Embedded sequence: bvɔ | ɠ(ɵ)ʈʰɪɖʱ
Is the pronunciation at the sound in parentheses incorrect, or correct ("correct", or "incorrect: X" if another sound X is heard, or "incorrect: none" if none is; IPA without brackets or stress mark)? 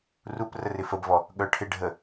incorrect: œ